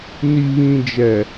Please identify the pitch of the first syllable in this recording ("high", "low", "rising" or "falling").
low